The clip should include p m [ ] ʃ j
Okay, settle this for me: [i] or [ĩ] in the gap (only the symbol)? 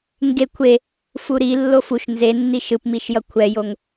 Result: i